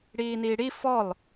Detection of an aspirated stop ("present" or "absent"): absent